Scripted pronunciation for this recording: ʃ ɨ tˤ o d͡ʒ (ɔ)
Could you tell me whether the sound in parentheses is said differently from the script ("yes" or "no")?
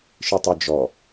no